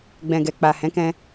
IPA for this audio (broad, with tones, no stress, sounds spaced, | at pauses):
ɡ͡b ɛ̃˨ ɡ ɛ˨ k͡p a˨ h ɛ̃˨˦ k ɛ̃˧